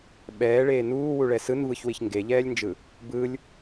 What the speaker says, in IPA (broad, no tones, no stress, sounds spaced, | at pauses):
ɓ ɛː ɭ eː n uː w u ɭ ɛ s ɯ n v ɯ ç w i ç ŋ ɡ e ʎ ɛː lʲ n d͡ʒ ɯ | b ɯ lʲ